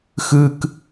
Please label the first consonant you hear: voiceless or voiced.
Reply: voiceless